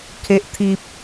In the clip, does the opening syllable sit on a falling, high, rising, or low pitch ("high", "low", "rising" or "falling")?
low